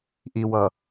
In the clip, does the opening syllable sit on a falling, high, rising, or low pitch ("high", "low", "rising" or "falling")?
low